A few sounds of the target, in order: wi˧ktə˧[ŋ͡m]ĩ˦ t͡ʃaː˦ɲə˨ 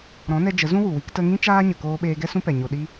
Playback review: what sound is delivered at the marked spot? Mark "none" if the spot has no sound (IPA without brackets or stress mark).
ŋ